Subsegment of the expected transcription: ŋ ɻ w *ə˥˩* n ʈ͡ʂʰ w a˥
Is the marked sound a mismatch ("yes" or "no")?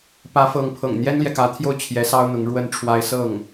yes